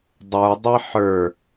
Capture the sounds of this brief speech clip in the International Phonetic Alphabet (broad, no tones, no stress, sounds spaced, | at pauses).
dˤ ə˞ dˤ i ħ ə˞